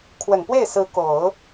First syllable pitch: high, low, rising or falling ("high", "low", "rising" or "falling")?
low